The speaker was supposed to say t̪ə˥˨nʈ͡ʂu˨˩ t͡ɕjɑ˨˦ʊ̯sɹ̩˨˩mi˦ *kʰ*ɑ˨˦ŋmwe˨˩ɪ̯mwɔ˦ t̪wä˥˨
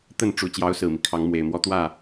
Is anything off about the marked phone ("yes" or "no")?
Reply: no